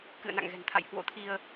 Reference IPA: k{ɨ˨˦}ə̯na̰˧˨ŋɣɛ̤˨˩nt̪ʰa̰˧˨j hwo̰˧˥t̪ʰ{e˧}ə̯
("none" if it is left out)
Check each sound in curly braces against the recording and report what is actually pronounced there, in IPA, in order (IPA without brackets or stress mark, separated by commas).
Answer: ɨ̰˧˨, i˧